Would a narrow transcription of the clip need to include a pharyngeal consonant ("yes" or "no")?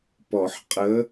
yes